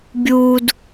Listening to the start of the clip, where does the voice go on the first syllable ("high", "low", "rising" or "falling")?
high